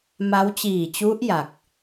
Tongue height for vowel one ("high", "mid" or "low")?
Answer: low